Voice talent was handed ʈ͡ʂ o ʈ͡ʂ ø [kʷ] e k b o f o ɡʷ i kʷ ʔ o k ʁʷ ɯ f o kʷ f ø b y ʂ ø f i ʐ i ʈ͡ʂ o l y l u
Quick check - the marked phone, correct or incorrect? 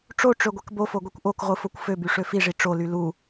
incorrect